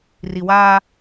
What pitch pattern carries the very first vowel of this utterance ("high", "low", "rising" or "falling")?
low